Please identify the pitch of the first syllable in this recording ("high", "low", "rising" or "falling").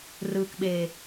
low